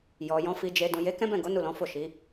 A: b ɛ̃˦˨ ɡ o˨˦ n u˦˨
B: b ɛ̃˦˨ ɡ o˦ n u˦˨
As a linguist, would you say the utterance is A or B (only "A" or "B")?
A